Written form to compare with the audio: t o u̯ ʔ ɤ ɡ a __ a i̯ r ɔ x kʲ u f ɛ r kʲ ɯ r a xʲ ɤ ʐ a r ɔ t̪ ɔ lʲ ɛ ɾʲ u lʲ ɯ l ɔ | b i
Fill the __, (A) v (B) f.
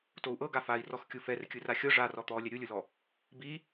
B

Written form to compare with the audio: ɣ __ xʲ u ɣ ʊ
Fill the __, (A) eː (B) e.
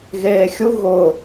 A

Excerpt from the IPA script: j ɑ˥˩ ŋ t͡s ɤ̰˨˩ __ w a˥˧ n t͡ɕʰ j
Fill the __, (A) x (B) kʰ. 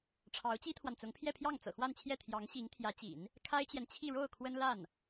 A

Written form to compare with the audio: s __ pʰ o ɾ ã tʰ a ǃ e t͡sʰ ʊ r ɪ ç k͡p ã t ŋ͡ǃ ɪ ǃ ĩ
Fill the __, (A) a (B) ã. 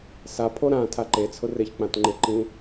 A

